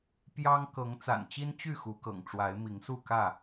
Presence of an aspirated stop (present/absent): absent